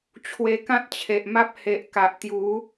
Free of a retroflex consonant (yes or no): yes